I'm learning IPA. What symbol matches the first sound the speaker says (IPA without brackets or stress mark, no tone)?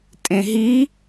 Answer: tʼ